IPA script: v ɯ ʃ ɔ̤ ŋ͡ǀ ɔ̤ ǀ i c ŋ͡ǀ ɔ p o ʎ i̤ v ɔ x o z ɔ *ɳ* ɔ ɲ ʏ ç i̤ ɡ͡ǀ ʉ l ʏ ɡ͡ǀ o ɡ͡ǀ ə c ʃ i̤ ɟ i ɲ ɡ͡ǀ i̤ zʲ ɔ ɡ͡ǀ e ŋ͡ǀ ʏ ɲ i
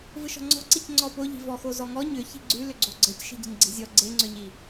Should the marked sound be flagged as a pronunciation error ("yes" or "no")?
yes